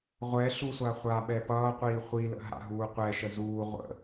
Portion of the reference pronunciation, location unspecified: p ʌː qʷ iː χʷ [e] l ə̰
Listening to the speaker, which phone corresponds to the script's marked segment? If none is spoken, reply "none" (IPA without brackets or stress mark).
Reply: i